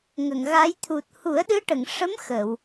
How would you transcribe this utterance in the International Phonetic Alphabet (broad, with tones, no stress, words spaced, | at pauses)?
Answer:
ŋə˨˩˨ŋɣa˧˥j t̪ʰu˨˩t̚ hu˨˩˦ə̯ɗɨ˧˥ʈə˨˩˨ŋʂə˧˥m xə˨˩˨w